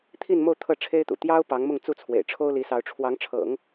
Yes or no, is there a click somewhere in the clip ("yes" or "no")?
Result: no